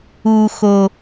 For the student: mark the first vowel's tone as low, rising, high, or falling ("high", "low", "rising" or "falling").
low